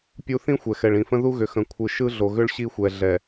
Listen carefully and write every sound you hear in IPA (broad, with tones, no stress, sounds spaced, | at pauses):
pʲ u˦ θ ĩ˦ xʷ ɛ˨ x ɛ˨ ɭ ĩ˨ f ə̃˦ ð u˦ ɣ ʏ˨ x ə̃˨ kʷʰ ɯ˨ ʃ ɯ˦ ɮ o˨ ɣ ʏ˦ ɭ ɕ i˦ xʷ ɛ˨ ɮ ɛ˨